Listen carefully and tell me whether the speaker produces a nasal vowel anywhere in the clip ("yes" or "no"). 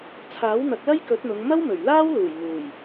no